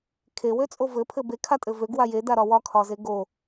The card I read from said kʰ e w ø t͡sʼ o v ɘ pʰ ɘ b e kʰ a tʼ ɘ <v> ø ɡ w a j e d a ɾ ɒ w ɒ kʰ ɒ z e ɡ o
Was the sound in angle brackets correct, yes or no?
yes